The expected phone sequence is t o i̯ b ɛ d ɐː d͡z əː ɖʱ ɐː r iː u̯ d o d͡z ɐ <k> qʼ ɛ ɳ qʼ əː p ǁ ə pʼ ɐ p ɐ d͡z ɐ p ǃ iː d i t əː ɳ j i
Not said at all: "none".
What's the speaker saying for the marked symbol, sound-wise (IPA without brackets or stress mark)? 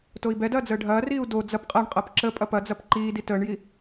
p